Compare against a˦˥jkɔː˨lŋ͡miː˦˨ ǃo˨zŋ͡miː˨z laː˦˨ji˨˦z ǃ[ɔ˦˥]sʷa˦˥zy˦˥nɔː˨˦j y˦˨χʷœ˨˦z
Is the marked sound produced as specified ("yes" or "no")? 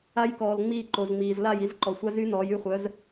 no